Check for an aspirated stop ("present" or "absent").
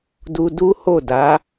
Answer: absent